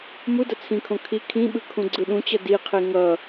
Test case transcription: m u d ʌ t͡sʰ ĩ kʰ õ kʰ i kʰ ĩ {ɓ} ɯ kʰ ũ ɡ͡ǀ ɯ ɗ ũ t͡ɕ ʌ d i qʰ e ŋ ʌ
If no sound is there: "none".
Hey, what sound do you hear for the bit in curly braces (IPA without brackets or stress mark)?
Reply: ɓ